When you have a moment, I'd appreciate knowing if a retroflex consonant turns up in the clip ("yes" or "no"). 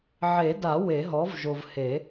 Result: no